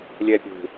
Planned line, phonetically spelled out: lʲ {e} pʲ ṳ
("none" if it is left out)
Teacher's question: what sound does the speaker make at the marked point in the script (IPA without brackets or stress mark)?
ɛ